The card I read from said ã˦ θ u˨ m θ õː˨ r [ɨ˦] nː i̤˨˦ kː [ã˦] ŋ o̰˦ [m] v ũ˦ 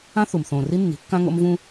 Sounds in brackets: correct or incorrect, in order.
incorrect, correct, correct

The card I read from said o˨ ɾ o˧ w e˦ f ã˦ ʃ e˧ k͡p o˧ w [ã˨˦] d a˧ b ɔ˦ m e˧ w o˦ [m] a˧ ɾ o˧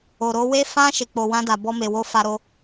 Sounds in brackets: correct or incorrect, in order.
incorrect, incorrect

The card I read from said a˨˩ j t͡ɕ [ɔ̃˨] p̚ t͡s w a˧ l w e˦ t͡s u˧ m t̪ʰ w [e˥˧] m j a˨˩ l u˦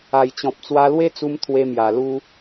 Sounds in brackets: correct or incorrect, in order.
correct, incorrect

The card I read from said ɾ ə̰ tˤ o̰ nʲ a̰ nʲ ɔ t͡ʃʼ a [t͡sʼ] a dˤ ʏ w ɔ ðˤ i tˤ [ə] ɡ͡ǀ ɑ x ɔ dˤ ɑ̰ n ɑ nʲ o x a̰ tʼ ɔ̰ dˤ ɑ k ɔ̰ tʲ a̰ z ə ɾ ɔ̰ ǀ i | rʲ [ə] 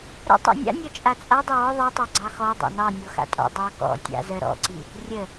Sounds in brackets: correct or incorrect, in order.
correct, incorrect, correct

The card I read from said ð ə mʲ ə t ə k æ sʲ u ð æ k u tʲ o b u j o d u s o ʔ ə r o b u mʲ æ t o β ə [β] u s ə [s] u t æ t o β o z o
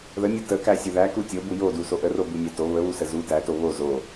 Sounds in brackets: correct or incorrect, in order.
correct, incorrect

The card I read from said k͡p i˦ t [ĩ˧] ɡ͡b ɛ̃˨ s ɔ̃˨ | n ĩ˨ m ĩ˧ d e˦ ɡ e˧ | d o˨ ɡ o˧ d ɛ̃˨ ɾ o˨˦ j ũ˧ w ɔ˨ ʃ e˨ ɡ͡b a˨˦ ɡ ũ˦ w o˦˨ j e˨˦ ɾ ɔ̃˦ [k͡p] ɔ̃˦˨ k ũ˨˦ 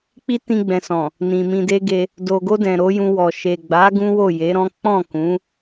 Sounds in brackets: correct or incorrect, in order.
correct, correct

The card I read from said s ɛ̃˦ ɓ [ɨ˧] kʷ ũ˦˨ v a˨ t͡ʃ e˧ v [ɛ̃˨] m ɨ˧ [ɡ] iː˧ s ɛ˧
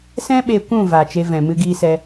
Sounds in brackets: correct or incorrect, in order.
incorrect, correct, correct

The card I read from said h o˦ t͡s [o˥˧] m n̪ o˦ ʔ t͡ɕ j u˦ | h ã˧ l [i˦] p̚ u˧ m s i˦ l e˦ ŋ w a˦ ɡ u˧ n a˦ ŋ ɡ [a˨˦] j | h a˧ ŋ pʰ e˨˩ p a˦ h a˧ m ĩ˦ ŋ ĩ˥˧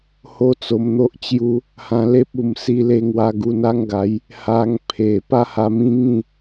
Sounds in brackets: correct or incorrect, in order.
incorrect, incorrect, correct

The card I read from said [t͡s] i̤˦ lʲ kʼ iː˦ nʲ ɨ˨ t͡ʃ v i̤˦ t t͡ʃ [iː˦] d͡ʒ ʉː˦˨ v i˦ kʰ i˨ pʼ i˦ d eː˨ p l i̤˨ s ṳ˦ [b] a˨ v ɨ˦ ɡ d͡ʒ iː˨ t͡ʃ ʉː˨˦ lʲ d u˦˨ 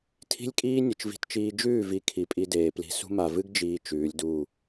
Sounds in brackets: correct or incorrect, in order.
incorrect, correct, incorrect

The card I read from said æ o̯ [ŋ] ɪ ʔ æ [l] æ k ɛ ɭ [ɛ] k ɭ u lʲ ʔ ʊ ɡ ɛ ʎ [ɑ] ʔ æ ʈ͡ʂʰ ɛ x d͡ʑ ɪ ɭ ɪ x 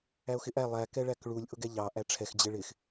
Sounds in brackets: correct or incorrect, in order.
incorrect, incorrect, incorrect, correct

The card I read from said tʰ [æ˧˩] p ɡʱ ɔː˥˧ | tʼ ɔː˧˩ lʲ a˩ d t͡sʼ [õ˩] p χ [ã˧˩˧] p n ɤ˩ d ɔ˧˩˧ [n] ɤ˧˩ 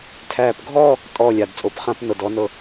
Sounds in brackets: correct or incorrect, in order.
incorrect, incorrect, correct, correct

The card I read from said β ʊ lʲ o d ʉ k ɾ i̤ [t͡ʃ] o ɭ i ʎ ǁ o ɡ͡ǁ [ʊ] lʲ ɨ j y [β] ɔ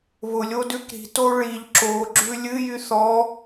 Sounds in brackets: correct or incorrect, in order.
incorrect, incorrect, incorrect

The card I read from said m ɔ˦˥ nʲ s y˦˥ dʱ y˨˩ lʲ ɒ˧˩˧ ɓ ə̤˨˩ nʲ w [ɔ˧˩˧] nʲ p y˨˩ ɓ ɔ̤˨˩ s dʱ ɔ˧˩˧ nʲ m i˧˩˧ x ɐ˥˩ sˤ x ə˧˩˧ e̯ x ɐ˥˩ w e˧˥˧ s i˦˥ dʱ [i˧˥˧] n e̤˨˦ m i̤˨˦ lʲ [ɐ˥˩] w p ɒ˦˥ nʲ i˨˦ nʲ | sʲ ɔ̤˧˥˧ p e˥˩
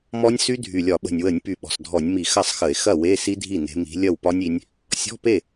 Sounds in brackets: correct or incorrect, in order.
incorrect, incorrect, correct

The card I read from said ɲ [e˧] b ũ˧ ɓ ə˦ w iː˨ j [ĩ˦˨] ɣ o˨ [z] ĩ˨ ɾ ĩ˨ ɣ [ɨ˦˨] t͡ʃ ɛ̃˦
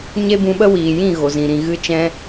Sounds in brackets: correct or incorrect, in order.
incorrect, correct, correct, correct

